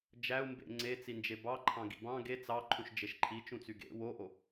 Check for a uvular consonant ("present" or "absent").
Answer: absent